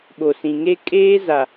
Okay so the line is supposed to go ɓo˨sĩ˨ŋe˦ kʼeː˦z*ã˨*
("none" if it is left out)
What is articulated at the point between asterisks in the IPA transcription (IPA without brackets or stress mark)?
a˨